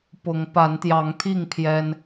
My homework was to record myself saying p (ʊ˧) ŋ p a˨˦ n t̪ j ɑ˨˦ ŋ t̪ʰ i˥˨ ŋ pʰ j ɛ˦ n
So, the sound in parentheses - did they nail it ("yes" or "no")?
no